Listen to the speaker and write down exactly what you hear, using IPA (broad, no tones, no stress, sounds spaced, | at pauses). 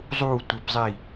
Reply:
zˤ uː tʷ e p zˤ i